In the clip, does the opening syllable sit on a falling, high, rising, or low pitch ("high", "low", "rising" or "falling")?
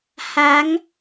rising